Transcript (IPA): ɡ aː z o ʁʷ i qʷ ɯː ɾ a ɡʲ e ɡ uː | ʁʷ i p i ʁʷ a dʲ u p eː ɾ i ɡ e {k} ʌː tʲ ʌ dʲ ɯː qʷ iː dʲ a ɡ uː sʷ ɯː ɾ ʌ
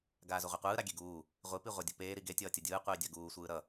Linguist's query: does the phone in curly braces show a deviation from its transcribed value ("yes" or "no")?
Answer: yes